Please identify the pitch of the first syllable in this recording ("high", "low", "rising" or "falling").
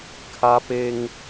high